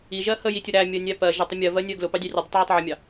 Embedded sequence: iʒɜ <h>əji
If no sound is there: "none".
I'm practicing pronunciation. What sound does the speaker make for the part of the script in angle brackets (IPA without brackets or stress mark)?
h